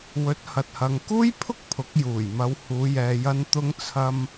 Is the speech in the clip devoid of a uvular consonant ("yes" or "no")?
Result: yes